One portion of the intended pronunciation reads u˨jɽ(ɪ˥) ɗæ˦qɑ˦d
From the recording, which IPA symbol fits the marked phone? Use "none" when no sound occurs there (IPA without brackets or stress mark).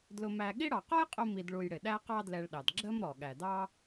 ɪ˩